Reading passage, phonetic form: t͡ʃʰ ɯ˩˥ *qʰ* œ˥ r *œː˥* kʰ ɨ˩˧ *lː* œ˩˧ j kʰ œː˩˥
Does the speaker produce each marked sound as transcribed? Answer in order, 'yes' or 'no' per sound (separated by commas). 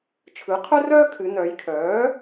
yes, yes, no